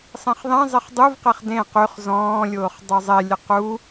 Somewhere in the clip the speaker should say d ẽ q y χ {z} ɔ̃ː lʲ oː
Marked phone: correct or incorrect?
correct